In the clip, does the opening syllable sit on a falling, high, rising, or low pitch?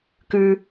high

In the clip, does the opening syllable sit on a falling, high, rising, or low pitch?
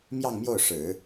falling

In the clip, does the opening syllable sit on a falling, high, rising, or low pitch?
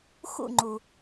falling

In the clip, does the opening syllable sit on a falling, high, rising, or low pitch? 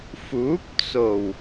rising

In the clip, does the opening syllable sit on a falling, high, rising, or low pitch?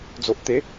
low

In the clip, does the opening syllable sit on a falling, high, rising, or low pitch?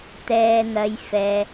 low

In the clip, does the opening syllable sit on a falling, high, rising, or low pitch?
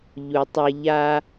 low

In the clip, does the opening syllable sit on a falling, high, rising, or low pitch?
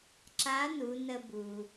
rising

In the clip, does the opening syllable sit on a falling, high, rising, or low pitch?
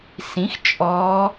rising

